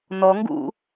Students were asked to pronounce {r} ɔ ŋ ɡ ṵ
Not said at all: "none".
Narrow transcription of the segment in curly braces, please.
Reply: n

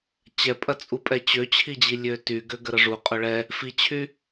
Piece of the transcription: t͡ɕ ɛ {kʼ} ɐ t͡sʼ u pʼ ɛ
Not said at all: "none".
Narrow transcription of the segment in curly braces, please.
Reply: pʼ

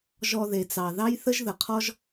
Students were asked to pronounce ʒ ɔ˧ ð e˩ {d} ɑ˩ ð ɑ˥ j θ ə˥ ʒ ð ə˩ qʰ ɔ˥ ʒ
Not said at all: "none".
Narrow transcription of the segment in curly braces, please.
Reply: t͡s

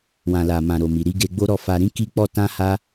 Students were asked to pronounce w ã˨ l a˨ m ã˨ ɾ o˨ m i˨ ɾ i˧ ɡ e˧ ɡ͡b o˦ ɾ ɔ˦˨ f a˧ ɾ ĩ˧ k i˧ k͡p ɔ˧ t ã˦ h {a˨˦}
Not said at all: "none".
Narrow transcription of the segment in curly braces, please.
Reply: a˦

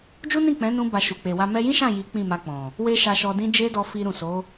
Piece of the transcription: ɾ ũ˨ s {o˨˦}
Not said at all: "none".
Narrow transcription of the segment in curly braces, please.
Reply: o˨˦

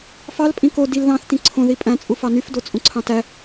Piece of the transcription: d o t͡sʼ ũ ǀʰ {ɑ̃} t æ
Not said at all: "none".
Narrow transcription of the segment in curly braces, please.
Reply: ɑ̃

